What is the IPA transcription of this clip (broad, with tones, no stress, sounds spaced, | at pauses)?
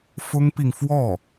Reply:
f ʊ˥ ŋ p i˨ ŋ f w ɔ˥˩